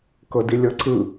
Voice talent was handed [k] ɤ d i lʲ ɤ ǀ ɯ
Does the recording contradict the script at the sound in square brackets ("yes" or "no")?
no